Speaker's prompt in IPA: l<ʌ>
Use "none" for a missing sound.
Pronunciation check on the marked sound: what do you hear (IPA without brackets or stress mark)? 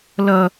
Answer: ʌ